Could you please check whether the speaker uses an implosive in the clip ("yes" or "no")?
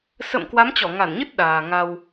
yes